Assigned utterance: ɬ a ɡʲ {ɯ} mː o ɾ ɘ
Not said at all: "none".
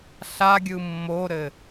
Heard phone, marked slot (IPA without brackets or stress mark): ɯ